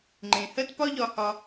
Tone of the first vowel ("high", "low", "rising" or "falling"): low